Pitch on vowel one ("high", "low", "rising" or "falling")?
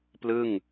falling